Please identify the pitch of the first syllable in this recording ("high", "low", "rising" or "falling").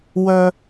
low